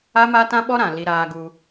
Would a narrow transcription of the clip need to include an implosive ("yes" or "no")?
yes